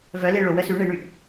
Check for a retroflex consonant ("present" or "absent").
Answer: present